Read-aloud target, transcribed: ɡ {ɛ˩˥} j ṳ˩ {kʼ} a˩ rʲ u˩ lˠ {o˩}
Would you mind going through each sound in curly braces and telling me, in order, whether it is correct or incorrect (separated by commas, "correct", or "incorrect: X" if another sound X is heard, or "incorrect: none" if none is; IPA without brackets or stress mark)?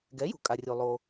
correct, correct, correct